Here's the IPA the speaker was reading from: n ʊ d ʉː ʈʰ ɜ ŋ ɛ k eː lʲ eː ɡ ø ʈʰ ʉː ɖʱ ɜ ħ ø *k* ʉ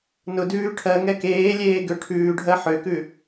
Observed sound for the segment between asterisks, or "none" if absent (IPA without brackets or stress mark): k